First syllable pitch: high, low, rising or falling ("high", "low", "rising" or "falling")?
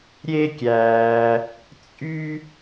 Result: high